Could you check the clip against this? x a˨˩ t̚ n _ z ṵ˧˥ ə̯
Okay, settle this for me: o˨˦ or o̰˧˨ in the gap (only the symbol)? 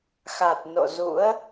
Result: o̰˧˨